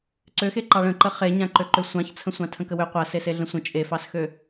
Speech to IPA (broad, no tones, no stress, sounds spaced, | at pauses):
ǀ ø x e ǃ ɑ ɭ ə̃ ǃ ə χ e ɲ ã ǃ ø ǃ ø sʷ ɑ̃ ç t͡sʰ ə̃ sʷ ɑ̃ tʰ ə̃ k ə w ø qʷ a s e s e ɮ ə̃ sʷ ə̃ t͡ʃʼ e f ɑ s x ø